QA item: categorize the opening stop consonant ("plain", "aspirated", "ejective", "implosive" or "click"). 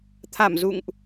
aspirated